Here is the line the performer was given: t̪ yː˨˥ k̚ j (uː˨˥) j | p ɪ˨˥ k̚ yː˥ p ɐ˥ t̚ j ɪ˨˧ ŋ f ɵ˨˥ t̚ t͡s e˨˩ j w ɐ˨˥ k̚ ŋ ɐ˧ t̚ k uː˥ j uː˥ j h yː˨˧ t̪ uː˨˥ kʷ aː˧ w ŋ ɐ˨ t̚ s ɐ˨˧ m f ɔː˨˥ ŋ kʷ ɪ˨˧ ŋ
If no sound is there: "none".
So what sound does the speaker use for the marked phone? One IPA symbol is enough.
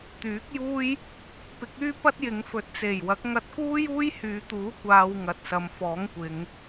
uː˥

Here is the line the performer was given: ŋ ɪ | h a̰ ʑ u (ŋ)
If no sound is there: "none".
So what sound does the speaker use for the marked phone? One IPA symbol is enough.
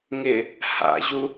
none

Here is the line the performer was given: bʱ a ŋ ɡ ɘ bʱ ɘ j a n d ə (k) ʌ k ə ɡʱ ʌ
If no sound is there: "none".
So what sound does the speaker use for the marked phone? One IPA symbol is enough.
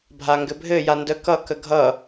k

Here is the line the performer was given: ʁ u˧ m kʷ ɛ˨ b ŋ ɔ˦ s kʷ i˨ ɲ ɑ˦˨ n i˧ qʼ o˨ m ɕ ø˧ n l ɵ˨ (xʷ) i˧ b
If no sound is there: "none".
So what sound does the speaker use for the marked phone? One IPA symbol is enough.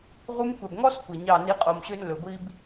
ɡʷ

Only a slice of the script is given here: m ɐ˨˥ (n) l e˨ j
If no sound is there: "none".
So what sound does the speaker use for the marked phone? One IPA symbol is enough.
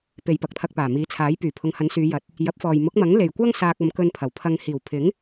ŋ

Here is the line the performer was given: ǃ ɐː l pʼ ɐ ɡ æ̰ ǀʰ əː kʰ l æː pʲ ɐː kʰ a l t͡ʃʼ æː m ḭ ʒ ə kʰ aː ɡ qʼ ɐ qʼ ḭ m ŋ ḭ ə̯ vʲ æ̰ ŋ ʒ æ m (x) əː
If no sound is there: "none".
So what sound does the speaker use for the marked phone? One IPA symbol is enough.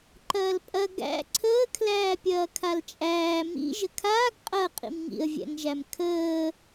kʰ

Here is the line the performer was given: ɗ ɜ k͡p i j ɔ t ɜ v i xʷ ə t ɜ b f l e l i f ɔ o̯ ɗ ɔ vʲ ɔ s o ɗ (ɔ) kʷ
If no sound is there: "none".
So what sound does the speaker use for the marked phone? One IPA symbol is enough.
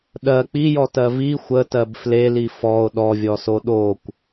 o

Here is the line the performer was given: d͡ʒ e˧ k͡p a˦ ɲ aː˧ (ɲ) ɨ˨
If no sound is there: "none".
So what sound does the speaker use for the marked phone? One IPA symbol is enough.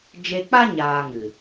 ŋ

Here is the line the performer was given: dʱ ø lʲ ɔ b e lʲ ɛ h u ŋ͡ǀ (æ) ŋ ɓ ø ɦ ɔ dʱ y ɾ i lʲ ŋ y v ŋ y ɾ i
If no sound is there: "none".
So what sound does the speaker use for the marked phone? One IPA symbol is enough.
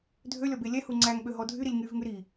æ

